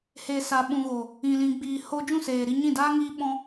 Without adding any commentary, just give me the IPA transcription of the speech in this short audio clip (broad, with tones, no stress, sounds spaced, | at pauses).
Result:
h e˨ s a˨ ɓ ũ˨ ɣ o˨ | ĩ˨ l ĩ˨ ɡ͡b iː˨ h o˧ d͡ʒ ũ˦˨ s eː˨ ɾ i˧ ɲ ĩ˦˨ d aː˦ ŋ iː˧ ɓ ɔ̃˧